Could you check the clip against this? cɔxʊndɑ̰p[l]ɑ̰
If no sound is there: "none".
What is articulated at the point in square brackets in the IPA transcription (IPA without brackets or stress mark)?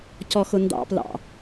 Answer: l